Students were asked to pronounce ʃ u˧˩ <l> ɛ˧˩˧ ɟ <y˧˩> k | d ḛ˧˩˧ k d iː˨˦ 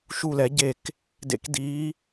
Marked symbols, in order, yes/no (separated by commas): yes, no